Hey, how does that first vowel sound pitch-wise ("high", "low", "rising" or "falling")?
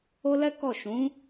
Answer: high